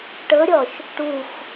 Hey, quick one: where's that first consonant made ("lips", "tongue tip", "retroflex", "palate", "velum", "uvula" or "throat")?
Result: retroflex